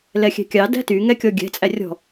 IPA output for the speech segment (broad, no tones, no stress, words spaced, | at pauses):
lɛxʲɛ̤kʲɑ dæ̤ty ŋɛkʲɔɡʲɛ̤ t͡sʼærʲɔ̤